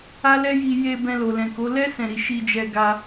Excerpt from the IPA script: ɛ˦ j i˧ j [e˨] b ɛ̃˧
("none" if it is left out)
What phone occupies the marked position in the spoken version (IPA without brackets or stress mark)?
e˧